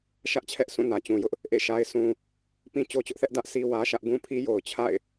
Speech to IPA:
ʃä˦ʔt͡ɕʰɛ˦ʔsũ˦˨ nä˨t͡ɕũ˨jʊ˦ʔ | ʔḛ˦˨ʃa˦ɪ̯sũ˦ | pĩ˦t͡ɕo˦t͡ɕʊ˦ʔθɛ˦ʔ dä˦ʔ sʰi˦wä˦ʃä˦ʔ ɡũ˦pʰi˦ jo˨ʊ̯t͡ɕʰa̰˦˨ɪ̯

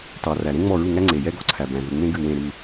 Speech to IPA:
tɑ˩ræ˩ ɾẽ˦ŋ͡mɔ˧˩ ɹu˧˩ŋæ˦ ŋ͡ǀe˩jɛ˦ɡɔ˧˩ǀʰæ˩ bæ̃˩ðu˩ ŋ͡mẽ˦ɡʉ˧˩wẽ˧˩ ɾʉ˧˩

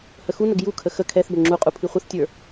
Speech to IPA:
həxunəɡ jukʰə xə kʰɛθbə ŋ͡ǁuqʼu pʰiχʷəθtʲə˞

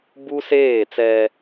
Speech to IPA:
bu˦seː˦˨t͡sɛ˦

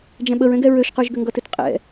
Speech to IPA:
d͡ʒɛ̃ɓəɹɛ̃ɡɛ ɹøʃqə˞ʒɡʏ ŋɡʌtʏtqʼɛ̰

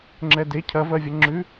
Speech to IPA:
ŋ͡ǁɛde cʰɐvɜvʲɐ ŋ͡ǁʉ

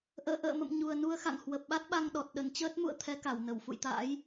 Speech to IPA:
ʔə̰ː˧˨ʔə̰ː˧˨mə̰˧˨m ɲu˨˩ə̯nu˧ə̯xa̰˧˨ŋ hwə˨˩p̚ɓa˦˥t̚ɓa˧ŋɗɔ˨˩t̚ ɗə˧˩nt͡ɕəː˦˥t̚mṵ˧˨ə̯ t̪ʰɛ˨˦ka˧˩w nə˧˩wfṵ˧˨jt̪a̰ː˧˥j

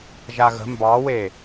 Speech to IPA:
ʒaɣə̤ mbɑwe

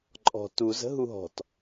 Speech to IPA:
ǃʼɔ̤ tuz ə̤ɦuɦɔ̤t

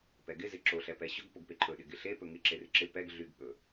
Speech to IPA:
pɛɡɪ zɪǁo ɬɛpɛɕɵɡ poɡpeǃʰɵ ɗɪɡɪɬe pɵŋɪ ǁerɪǁɪ pɛɡ ɮyɡɠɵ

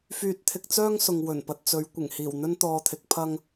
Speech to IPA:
fyː˧t̚t̪ʰɪ˧k̚t͡sœː˥ŋsʊ˨ŋ wɵ˨˩npɐ˨t̚t͡sɵ˨˧ɥ kʷɪ˨˩ŋhiː˨˩wn̪ɵ˥n t̪ɔː˧t̪ʰɪ˨˥k̚ pʰɐ˥ŋ

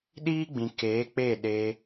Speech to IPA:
ɗiː˦ɡ͡bĩ˨ keː˨˦k͡pe˦˨ ɗe˧

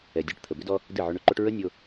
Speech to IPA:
ɛ˨dʲɛ˧ʈ t̪ʰə˨bʏ˦dɔ˦ | dɨ˦˨ʕʏ˧ɳʏ˦ǃo˦ʈ ɹə˦nʲo˧

